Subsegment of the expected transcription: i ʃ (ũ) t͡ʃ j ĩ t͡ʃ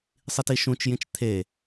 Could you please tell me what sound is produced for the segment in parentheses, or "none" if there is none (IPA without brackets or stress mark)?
ũ